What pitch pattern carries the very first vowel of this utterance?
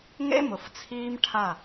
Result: high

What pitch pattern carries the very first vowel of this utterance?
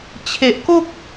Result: low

